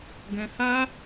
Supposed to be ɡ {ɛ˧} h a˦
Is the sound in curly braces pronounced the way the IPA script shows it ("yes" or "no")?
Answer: no